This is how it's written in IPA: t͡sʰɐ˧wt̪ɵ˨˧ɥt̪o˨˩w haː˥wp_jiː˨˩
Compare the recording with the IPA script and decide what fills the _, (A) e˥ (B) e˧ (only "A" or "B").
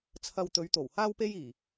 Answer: A